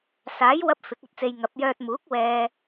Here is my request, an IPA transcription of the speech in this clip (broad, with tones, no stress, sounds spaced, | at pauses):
s aː˨˥ j w ɐ˧ p̚ f ɪ˨˥ k̚ ɐ˨˥ t̚ t͡s e˧ j ŋ ɐ˨˥ p̚ j œː˧ t̚ m uː˨˥ k̚ w ɛː˧